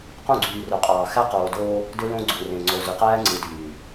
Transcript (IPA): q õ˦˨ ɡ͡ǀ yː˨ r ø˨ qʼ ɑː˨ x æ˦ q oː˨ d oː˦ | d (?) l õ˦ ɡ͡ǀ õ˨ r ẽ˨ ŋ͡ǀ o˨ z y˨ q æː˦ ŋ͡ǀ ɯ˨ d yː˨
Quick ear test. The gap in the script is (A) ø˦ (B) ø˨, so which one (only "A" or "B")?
A